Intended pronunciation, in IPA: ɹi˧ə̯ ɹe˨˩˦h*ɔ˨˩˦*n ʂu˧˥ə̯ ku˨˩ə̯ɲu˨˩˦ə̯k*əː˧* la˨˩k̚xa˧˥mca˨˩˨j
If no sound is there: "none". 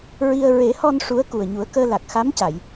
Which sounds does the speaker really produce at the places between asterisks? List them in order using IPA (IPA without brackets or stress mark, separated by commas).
ɔ˧, əː˧